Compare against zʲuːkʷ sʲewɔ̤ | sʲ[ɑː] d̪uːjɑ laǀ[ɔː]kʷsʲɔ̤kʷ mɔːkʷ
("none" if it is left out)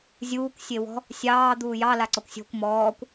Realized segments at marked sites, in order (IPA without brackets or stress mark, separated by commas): ɑː, ɔ